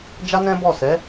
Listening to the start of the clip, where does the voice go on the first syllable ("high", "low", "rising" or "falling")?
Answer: high